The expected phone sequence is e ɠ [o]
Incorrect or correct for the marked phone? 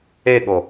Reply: correct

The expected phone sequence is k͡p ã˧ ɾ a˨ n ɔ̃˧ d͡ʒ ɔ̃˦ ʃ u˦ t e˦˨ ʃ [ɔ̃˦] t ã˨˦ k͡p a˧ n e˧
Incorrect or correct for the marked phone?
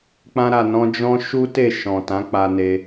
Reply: incorrect: ɔ̃˨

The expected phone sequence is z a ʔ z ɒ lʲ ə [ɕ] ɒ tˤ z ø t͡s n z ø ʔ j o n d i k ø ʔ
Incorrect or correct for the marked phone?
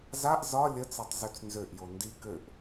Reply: incorrect: t͡s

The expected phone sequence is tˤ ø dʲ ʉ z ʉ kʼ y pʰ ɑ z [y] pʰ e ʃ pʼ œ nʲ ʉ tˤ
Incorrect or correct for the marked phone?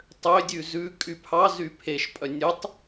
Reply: correct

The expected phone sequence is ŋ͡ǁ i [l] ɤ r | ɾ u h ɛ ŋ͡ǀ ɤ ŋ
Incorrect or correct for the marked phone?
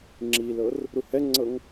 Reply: correct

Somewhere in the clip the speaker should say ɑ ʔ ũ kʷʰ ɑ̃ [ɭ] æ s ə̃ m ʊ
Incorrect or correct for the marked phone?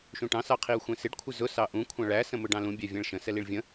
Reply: correct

